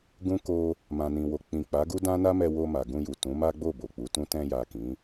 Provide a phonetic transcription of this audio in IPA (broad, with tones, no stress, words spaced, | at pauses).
ɡũ˦ ko˧ | mã˨nĩ˨wo˨ k͡pĩ˨k͡pa˨˦ɡu˦ dã˦na˦mɛ˧wo˧ ma˨ɡũ˧ju˨ tũ˨˦ma˦ɡ͡bo˦˨ bo˨k͡pu˨˦tũ˦ tɛ̃˧ja˨ kĩ˨˦